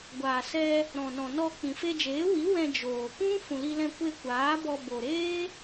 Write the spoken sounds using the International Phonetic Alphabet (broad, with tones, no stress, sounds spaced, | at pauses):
ɡʷ aː˨ s ɛ˧ | ɾ ɔ̃˨ n ɔ̃˨ n ɔ˧ k͡p ĩ˨ f e˧ d͡ʒ eː˨˦ w i˨˦ w ɛ̃˧ d͡ʒ oː˨ k ũ˦ f ũ˨ l i˧ l ɛ̃˧ kʷ e˧ kʷ aː˨˦ b ɔ˧ b o˨ ɾ eː˦